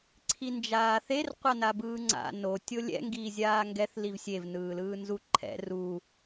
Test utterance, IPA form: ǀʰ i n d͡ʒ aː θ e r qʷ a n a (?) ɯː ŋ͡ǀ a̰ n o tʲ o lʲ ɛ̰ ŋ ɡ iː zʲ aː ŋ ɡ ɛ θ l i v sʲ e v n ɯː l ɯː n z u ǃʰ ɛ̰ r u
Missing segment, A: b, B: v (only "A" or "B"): A